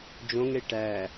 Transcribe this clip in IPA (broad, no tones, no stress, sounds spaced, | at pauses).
d͡ʒ õ ŋ ɽ e ʈ æ